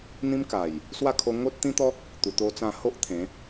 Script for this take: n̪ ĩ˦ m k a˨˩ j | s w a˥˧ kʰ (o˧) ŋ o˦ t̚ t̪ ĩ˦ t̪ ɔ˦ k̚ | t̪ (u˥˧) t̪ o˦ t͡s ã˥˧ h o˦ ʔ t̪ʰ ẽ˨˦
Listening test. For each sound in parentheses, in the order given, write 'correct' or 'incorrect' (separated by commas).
correct, incorrect